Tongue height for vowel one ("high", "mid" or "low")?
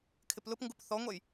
high